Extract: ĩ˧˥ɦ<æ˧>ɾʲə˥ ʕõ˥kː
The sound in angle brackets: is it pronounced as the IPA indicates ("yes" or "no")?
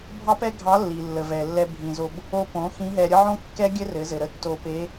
no